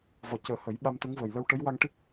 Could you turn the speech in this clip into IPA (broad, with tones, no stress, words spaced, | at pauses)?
vɔ˨˩cəː˨˩˦ hə˨˩˦j ɓa˧mt̪ə˧˥ŋvəː˨˩j lə˧wʈə˧˥jwa˧ŋʈi˦˥k̚